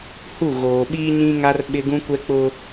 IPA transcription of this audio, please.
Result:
h u˦˨ ɣ oː˨ ɓ iː˦ ɲ ĩ˦ ŋ a˦ r ɓ ɪ˦ ɡ ũ˦ kʷ ɛ˦ k͡p ʊ˦

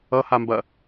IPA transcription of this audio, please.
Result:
ʌ h a m b ɐ

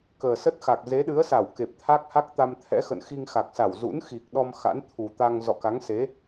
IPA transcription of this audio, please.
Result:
k əː˨˩ s ə˦˥ t̚ x a˨˩ k̚ z e˨˦ ɗ ɨ˨˦ ə̯ s a˧˩ w k e˨˩ p̚ t̪ʰ a˦˥ k̚ h a˦˥ k̚ t̪ a˧ m t̪ʰ ɛ̰˧˥ x ə̰˧˨ n x i˧ ŋ x a˨˩ k̚ s a˧˩ w z ṵ˧˥ n x i˨˩ k̚ ɗ ɔ˧ m x a̰˧˥ n t̪ʰ u˨˩ t̪ a˧ ŋ z ɔ̰˧˨ k a˨˦ ŋ s e˨˦

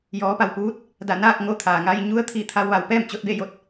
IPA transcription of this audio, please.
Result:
j ɔː˩˧ p a˧˩ w p uː˧˥ t̚ | d a˧˩ n aː˥˨ k̚ ŋ o˧ t̪ʰ aː˩ ŋ a˧ j ɲ u˧˥ ə̯ t̪ʰ i˧˩ t̪ʰ a˧ w ʋ a˩˧ w p ɛː˥˨ m t͡ɕ o˧ t̚ b e˥˨ j o˧˩ t̚

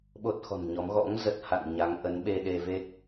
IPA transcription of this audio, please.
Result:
ɓ o˦˥ t̚ x ɔ̤˨˩ n ɲ ɔ˨˦ m ɣ ɔ̰˧˥ ŋ z ə˦˥ t̚ h a̰˧˨ n ɲ a˨˦ ŋ ʔ ə˨˦ n ɓ e˧ ɗ e˧ v e˦˥ k̚

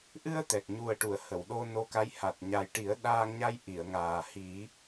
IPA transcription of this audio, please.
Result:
ʔ ɨ˧ ə̯ t̪ ɛ˨˩ k̚ ɲ u˨˩ ə̯ ʈ u˨˩˨ ə̯ h ə˨˩˨ w ɗ o˧ n o˧ k a˧˥ j h a˨˩ t̚ ɲ a˨˩ j ʈ i˨˩˦ ə̯ ɗ aː˧ ŋ ɲ a˧ j ʔ i˨˩˨ ə̯ ŋ aː˨˩ h i˨˩˦

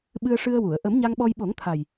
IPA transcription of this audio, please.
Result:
ɓ ɨ˧ ə̯ ʂ ɨ˧ ə̯ w u˨˩˨ ə̯ ʔ ə˨˩˦ m ɲ a˧ ŋ ɓ ɔ˧ j ɓ o˨˩˦ ŋ t̪ʰ a˨˩ j

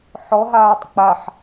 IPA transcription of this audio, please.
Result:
ħ ɔ ɦ aː tˤ k͡p a ħ

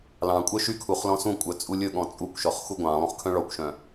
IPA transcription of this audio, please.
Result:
l ɑ̃ kʷʼ œ ʃ y kʰ u χ l ɔ̃ s ũ kʷʼ œ t͡sʼ u lʲ ɵ ɠ ɔ̃ t͡sʼ u kʷ ʃ ɔ χ x u ɡʷ ɑ̃ lˠ ũ χ kʰ œ̃ ɭ ɔ kʷ ʃ œ̃

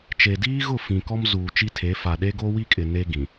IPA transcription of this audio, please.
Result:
t͡ʃ e˨ d iː˦ ɣ ʊ˦˨ f ĩ˨ k ɔ˦ m z uː˨ t͡ʃ i˦ tʰ e˨˦ f a˨ ɗ e˦ ɡ o˦ w i˦ kʼ ɪ˨ n e˦ ɡ ĩ˨

